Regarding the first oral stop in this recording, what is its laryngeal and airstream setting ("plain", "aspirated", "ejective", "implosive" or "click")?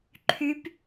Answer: click